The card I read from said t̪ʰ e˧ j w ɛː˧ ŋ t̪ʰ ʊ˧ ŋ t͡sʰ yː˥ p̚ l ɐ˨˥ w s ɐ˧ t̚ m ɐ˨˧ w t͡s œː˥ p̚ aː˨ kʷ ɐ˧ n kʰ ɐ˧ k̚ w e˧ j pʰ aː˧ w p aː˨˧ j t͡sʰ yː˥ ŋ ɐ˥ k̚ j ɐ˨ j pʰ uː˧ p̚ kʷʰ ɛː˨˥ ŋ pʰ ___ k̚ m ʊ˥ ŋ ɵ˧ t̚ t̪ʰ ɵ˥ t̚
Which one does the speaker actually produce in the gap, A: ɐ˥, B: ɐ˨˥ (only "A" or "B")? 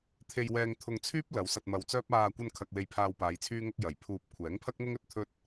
A